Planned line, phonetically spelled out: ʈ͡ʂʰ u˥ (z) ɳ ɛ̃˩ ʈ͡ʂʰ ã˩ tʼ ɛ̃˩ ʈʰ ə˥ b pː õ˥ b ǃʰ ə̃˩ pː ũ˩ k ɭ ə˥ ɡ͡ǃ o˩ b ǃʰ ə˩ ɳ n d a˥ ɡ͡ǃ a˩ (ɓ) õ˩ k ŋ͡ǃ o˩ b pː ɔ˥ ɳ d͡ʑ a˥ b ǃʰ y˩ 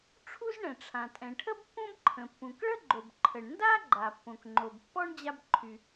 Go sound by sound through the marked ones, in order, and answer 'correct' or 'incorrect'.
correct, incorrect: pː

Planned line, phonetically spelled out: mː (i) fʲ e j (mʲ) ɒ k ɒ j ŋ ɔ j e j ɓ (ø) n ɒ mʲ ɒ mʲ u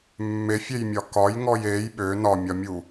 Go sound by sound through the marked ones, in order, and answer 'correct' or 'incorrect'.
incorrect: e, correct, correct

